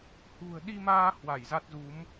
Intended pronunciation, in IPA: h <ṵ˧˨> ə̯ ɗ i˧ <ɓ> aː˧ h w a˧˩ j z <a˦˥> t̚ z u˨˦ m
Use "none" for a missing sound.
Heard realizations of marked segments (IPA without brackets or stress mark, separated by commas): ṳ˨˩, m, a˦˥